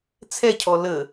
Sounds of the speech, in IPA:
t͡sʰ ɛ cʰ ɔ l ə

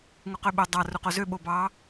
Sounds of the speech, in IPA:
ŋ u q ø ɓ o dˤ ɑ r u q o z ø ɓ o b ɑ

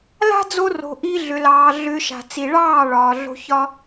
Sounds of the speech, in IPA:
l a̤˦ d͡z o˧ r o̤˨ ʔ i˧ ɮ ʏ˨ l ɑː˨ ɮ ʏ˧ ʃ a̤˨ t͡s i˨ ɭ ɑː˦˨ ɭ ɒː˨ ɮ o̤˧ ç ɒ˦

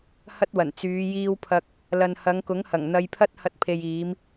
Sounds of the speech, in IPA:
h ɐ˥ t̚ w ɐ˨˩ n t͡s yː˨˧ j iː˧ w pʰ ɐ˧ k̚ | l ɐ˨ n h ɐ˨˧ ŋ k ʊ˨˥ ŋ h ɐ˨˩ ŋ n̪ ɐ˧ j pʰ ɐ˥ t̚ h ɐ˧ t̚ pʰ e˨ j iː˨˧ m

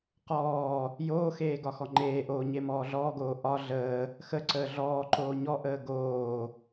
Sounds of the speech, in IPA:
q ɔː | j oː x eː ɡ ɒ x ɔ ŋ͡ǃ eː ʔ oː ɲ e m ɔː ɮ ɔː ɡ oː ʔ ɒ ɮ əː | x ə ǀ əː ɮ ɔː ǃ oː ɲ ɔ ʔ əː ɡ oː

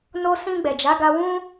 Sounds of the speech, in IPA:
n o˧ s ĩ˧ ɡ͡b ɛ˨ d͡ʒ a˨˦ ɡ a˧ w ũ˦

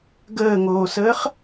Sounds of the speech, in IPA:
ɡ əː ŋ oː s əː χ

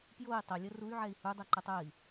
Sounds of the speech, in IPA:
p j o i̯ tˤ ə lʲ ə r u y̯ ʕ ɛ i̯ h u dˤ ɛ ǃ ɛ tˤ ə i̯

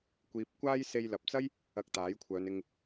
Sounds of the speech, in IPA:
kʷ iː˧ p̚ kʷ aː˥ j s e˧ j l ɐ˨ p̚ t͡s ɐ˥ j | ɐ˧ k̚ t̪ aː˨˥ j kʷʰ œː˨˧ n ɪ˧ ŋ

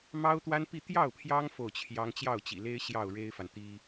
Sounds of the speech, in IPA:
m ɑ˥ ʊ̯ t̪ w a˥ n p i˥˧ t̪ j ɑ˥˩ ʊ̯ pʰ j ɑ˥ ŋ f o˥˩ ʊ̯ t͡ɕʰ j ɑ˥ ŋ t͡ɕ j ɑ˥˩ ʊ̯ t͡ɕ ḭ˨˩ l e˥ ɪ̯ ɕ j ɑ˥˩ ʊ̯ ɻ e˥ ɪ̯ f a˨ n t̪ i˥

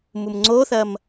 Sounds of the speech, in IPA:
m u m ŋ͡ǀ o θ ɐ m

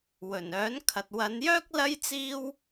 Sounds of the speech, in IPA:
w ɵ˨˩ n œː˨˥ n kʰ ɐ˨ t̚ w ɐ˨˧ n j œː˥ k̚ l ɐ˥ j t͡s iː˥ w

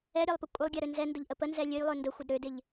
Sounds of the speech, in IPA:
ɛ ɾʲ a lˠ p ə kʷʼ ə lˠ ɡʲ a ɾ ø n z ɛ n d ʊ ʎ ʔ ə p ə n z ɛ lʲ ø j lˠ ø n d ə xʷ ɪ d ɾ ø d ɪ ʎ

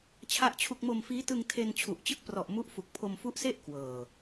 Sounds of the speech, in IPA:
t͡ɕʰ a˥˩ ʔ t͡ɕʰ u˥˩ k̚ m o˧ m f iː˦˥ t ɯ˧ ŋ tʰ e˧ n t͡ɕʰ u˨˩ ʔ t͡ɕ ɯ˦˥ k̚ p r ɔ˨˩ ʔ m u˦˥ ʔ f u˨˩ k̚ pʰ o˧ m f u˦˥ ʔ s e˥˩ ʔ k w ɤː˨˩

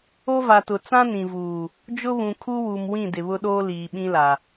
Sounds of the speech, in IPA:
o˦ v a˨ t ʊ˨ t͡s ã˦ n ĩ˨ v uː˨ | d͡ʒ ʊ˦ β ũ˨ kʰ u˦ w u˨ m w ĩ˦˨ d ɪ˨ β ʊ˦ ɗ oː˦ l iː˨ ɓ ĩ˦ l a˨

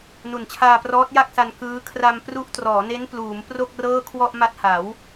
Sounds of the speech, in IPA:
n u˨˩ n t͡ɕʰ aː˧ p r ɔː˦˥ t̚ j a˥˩ k̚ s a˧ n k ɯː˦˥ kʰ r a˧ m p r u˦˥ ʔ t r ɔː˩˦ n e˦˥ n p l uː˩˦ m p r o˥˩ k̚ r ɤː˥˩ kʰ w ɔ˥˩ ʔ m a˦˥ t̚ h a˩˦ w

